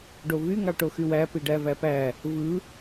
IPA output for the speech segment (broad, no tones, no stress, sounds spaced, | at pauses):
ɖ o v y ŋ ɑ ʈ o x y w æ p i ɖ æ v æ p æ | v ɯ